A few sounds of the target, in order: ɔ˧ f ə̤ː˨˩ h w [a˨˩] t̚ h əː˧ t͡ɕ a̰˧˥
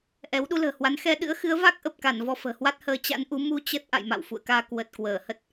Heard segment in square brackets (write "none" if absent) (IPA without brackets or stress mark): a˦˥